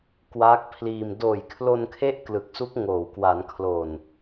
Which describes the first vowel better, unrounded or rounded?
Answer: unrounded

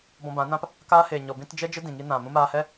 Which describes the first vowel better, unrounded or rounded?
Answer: rounded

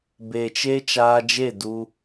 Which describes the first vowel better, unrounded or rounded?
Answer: unrounded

